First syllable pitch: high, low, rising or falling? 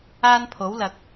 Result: high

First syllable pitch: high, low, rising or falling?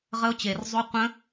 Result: high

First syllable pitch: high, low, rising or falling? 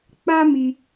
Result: high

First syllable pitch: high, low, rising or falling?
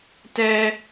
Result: high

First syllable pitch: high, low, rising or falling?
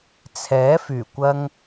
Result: rising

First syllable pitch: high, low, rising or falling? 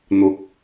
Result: rising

